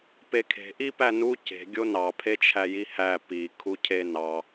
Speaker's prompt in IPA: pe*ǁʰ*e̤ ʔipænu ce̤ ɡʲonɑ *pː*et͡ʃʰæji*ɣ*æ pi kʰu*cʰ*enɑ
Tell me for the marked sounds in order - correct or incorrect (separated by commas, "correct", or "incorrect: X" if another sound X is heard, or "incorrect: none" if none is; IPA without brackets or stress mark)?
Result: incorrect: kʰ, incorrect: pʰ, incorrect: h, correct